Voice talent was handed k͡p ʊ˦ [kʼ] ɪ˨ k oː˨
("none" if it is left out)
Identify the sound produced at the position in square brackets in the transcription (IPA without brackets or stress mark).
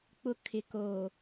kʰ